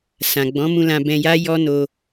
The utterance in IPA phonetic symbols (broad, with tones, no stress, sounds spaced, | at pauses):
s ã˨ ɡ͡b ɔ̃˨˦ m ũ˧ l ã˧ b ɛ̃˧ j a˦ j ɔ˦ n o˧